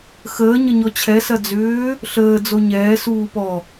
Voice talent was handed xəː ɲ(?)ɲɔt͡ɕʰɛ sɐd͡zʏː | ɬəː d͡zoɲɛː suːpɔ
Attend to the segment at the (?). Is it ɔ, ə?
ə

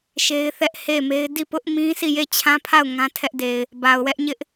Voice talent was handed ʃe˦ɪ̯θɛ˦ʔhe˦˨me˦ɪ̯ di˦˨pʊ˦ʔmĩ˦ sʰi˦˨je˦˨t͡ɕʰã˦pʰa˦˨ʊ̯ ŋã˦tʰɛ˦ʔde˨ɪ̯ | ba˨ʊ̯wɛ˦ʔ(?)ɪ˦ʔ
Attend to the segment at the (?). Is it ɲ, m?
ɲ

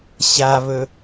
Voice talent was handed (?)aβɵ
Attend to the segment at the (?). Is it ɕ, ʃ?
ɕ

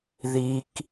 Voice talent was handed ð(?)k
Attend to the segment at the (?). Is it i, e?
i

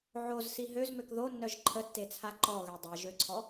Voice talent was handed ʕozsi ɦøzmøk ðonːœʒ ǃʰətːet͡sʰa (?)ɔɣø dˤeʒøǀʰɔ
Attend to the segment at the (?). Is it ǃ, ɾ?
ǃ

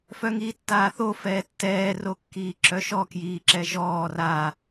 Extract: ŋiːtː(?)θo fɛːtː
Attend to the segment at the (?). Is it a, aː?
aː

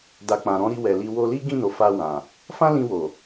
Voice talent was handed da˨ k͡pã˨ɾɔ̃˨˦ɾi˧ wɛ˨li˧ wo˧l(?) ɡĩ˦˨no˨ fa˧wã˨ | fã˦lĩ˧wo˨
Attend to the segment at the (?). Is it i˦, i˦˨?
i˦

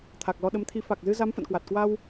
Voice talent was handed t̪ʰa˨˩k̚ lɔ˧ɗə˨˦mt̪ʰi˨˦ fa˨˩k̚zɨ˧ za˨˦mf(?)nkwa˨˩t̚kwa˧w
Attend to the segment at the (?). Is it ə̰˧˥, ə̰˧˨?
ə̰˧˨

